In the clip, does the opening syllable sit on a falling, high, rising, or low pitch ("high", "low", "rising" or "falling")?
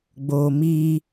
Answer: low